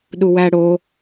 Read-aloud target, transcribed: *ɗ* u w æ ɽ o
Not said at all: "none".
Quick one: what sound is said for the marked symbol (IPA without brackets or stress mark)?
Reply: ɗ